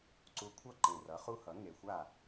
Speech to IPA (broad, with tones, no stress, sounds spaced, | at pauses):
ǀ u˧ kʷʰ ʌ˥˩ ǃ ẽ˨˩ r ʌ˩˥ χ u˧˥ h ʌ˩˥ ŋ e˨˩ xʷ a˥˩